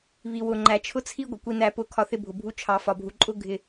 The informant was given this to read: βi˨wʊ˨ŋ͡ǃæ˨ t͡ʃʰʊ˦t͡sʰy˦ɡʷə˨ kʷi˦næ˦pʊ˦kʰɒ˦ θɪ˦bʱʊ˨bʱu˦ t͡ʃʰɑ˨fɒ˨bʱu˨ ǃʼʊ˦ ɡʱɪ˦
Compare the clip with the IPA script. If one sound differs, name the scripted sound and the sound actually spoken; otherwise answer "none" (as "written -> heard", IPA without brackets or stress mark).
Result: y˦ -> i˦